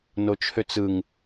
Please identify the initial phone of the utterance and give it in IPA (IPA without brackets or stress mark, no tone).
n